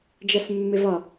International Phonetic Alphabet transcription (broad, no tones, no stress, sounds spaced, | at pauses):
d͡ʒ æ s mː ɪ v ɒ